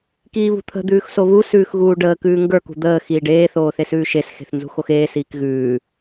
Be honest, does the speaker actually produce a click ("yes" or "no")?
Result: no